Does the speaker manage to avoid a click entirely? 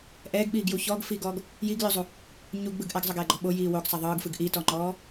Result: no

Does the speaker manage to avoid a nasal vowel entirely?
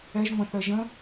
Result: no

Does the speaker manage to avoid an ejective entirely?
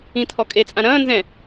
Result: no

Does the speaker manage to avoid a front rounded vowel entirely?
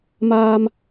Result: yes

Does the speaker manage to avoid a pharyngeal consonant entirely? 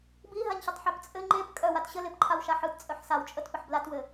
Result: no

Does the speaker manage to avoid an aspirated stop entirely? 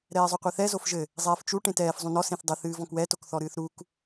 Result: yes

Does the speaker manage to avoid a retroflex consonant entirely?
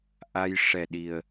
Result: no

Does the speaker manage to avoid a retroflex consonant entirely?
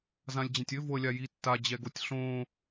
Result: yes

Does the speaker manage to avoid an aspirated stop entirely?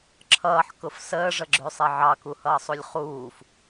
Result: no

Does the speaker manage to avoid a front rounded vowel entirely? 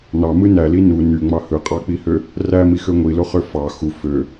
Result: no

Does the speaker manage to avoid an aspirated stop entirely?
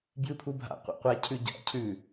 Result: no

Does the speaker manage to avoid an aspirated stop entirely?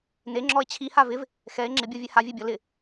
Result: no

